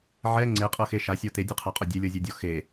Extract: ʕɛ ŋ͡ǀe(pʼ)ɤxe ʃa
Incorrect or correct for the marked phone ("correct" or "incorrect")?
incorrect